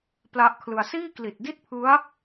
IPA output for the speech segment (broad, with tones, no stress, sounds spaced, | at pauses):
p l a˦˥ ʔ kʰ l ɯ˧ a̯ s iː˥˩ k l i˨˩ t̚ d i˥˩ t̚ pʰ ɯ˦˥ a̯